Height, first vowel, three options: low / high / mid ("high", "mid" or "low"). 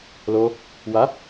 mid